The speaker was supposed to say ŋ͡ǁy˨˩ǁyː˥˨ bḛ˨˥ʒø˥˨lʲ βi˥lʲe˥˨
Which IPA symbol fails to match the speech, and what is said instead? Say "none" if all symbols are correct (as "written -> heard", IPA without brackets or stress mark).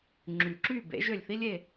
β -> θ